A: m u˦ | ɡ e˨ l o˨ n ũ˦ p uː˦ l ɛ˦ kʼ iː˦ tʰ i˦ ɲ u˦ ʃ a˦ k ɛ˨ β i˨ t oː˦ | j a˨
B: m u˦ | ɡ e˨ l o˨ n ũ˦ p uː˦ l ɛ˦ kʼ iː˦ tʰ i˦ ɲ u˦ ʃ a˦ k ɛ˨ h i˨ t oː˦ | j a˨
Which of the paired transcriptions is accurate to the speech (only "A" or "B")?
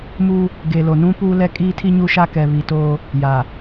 A